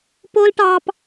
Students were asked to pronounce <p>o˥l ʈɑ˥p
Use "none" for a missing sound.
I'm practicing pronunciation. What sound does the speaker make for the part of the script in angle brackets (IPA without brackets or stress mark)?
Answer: p